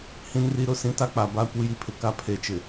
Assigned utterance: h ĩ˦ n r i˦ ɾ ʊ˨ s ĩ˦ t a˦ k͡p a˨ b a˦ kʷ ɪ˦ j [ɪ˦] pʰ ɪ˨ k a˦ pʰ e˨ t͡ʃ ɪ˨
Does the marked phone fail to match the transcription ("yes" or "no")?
yes